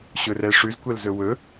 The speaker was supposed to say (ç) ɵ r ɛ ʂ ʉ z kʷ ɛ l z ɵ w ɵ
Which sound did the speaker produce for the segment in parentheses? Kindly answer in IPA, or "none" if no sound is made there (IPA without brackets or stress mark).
ɕ